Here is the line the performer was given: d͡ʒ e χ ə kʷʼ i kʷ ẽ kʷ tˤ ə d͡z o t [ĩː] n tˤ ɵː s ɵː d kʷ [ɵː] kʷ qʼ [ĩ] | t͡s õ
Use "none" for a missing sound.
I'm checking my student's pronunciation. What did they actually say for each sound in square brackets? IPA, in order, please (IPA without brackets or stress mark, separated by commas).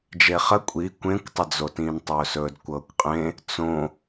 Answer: ĩː, ɤː, ẽ